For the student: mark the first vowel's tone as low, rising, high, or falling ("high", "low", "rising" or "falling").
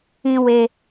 high